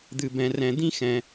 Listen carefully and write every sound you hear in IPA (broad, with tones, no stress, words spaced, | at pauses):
d̪ɨ˨bɛ̃˨rɛ̃˨ d̪ĩ˥xɛ̃˨